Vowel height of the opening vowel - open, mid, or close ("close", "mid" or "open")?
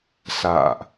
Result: open